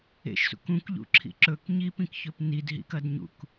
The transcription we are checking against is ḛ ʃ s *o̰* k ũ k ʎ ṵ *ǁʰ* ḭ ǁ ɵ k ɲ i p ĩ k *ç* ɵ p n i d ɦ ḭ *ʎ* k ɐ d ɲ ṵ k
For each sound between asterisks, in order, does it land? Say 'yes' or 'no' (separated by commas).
no, yes, yes, no